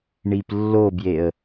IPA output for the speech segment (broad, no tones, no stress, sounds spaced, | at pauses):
ɳ i p lː o b j e ə̯